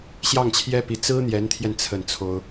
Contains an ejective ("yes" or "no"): no